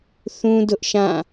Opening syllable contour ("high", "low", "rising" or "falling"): high